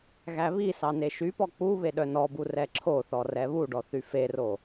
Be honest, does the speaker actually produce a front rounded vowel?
yes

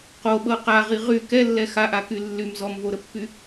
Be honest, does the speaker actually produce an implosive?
yes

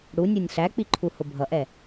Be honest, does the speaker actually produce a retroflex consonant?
yes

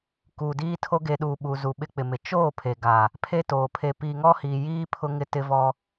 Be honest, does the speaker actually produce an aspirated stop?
yes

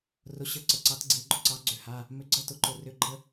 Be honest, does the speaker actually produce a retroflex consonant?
no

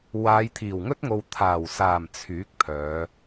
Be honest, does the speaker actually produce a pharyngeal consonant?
no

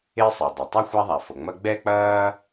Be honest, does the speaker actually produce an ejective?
no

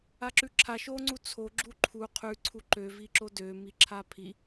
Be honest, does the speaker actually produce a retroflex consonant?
no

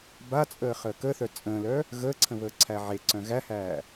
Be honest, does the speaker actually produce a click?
yes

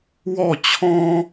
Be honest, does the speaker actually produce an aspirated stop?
yes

